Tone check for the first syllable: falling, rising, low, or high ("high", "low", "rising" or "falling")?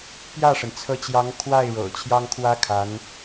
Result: falling